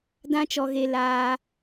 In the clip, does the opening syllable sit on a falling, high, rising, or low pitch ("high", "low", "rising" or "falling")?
high